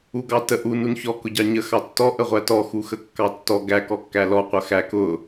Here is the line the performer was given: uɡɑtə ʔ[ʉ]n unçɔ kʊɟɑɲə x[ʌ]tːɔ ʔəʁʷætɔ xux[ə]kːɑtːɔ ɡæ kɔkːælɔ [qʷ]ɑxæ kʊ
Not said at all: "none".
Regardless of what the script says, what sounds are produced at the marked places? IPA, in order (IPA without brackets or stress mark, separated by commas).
u, ɑ, ə, qʷ